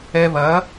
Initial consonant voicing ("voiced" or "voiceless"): voiced